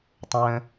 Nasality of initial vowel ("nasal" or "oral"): nasal